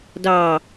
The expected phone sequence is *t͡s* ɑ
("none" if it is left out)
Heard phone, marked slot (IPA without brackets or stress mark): d